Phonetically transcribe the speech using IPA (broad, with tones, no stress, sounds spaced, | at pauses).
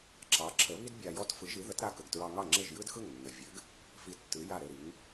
ǁ ɑ˩˥ ǁʰ ə˩˥ β i˥ d bʲ a˧ j ɔ˥ t f ɯ˩˥ ʒ i˩˥ ð ə˩˥ t ɾ a˧ k ə˩ ɡ t ɹ ɑ˧ ŋ ɑ˥˩ ŋ͡ǁ ɘ˥˩ ʒ j ɯ˥ d x ɯ˥˩ ŋ nː ə˩ vʲ ɘ˩˥ ɡ | f i˧ tː ɯ˩˥ j a˥˩ ɾ ɘ˥˩ ɾ i˩˥ ŋ